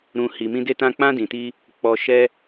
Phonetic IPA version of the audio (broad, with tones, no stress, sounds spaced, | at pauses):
ɾ ũ˨ h i˨ m ĩ˧ d e˧ t ã˧ k͡p ã˧ d ĩ˨ t i˧ | k͡p ɔ˨ ʃ ɛ˧